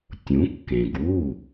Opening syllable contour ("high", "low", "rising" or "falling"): rising